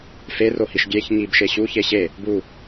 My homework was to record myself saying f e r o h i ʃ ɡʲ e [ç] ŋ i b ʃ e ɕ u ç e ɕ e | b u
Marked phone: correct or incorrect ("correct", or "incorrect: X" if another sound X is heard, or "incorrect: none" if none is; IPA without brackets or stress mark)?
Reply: correct